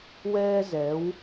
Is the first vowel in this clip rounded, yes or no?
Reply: no